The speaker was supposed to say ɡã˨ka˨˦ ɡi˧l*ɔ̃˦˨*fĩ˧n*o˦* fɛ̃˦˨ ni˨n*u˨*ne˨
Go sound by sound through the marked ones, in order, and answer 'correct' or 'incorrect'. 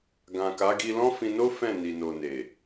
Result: incorrect: ɔ̃˦, correct, incorrect: o˨

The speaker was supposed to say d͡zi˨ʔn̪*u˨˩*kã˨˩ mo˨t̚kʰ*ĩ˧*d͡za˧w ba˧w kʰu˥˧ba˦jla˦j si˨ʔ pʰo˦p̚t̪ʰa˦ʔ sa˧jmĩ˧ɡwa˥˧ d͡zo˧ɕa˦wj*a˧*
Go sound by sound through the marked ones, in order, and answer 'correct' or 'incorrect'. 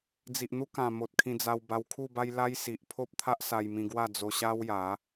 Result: incorrect: u˦, correct, incorrect: a˨˦

